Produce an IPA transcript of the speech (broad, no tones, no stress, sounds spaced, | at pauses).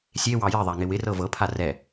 sʲ e w ɑ j ɪ ðˤ a ŋ ɪ w ɪ r ɤ v ɤ pʰ a r ɛ